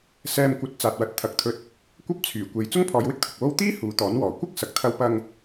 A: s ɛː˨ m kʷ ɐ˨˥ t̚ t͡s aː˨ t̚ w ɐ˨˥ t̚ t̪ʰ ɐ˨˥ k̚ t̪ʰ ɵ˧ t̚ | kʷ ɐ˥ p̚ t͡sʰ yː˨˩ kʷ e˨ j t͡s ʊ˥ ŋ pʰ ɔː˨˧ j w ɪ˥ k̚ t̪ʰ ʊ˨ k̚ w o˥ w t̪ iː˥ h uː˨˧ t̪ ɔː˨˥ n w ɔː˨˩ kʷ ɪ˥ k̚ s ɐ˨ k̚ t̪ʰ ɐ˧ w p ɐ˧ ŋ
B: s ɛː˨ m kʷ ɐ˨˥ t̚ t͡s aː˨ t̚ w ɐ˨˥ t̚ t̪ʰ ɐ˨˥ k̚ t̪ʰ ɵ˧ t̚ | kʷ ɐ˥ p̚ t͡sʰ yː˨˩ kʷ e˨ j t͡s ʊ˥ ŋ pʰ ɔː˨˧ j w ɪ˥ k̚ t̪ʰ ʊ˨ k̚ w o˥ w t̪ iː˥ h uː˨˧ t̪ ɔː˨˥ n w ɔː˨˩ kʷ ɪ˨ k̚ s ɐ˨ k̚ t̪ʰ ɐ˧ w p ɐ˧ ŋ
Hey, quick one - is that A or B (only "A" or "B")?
A